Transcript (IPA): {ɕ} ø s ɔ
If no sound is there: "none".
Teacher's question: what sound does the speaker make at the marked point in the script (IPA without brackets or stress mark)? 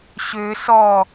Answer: ɕ